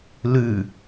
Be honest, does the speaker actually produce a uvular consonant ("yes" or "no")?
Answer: no